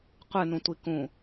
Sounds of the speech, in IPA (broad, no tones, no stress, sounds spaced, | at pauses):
qʷ ɨ n ũ tʷ i k ũ